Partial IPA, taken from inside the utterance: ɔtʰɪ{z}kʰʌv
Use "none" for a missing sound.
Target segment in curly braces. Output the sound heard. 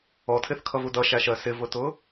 θ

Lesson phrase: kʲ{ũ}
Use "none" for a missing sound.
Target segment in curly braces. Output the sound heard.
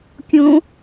õ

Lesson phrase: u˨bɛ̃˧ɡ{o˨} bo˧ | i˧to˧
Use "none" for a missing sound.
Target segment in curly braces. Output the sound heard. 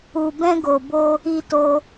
o˨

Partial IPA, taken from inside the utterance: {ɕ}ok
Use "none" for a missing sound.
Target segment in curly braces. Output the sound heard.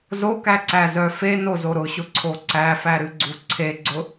z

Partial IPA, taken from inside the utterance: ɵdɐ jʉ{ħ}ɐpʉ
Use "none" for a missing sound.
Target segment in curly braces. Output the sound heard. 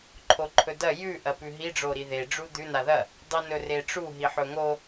ʔ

